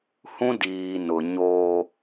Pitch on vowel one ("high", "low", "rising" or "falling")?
high